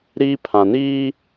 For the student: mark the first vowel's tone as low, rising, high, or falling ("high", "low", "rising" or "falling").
high